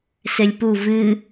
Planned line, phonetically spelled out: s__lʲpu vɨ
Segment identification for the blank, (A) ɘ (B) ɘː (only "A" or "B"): A